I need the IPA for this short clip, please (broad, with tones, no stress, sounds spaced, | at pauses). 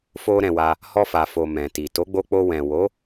f o˦ ɾ ɛ̃˧ w a˧ | h ɔ˧ f a˨ f o˨ m ɛ̃˨ t i˨ t o˨˦ ɡ͡b o˧ k͡p o˧ w ɛ̃˨ w o˨˦